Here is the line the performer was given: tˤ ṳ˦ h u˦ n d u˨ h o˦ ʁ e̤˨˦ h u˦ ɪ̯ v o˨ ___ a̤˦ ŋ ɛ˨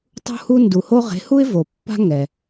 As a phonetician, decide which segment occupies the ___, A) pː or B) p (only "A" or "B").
A